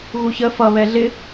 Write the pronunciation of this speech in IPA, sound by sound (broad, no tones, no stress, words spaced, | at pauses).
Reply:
ɣuçə fʌ βɛɮɪ